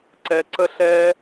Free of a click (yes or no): no